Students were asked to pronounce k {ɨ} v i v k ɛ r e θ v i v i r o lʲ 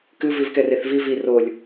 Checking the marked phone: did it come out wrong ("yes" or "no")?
no